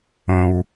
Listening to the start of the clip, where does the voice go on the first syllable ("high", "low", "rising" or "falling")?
low